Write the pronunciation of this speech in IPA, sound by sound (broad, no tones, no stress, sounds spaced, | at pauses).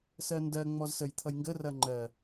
s ɜ n d ɜ ŋ͡m ɔ z s ə j t̪ʰ ʌ j ŋ ɡ ə r ɐ ŋ͡ǃ ɜ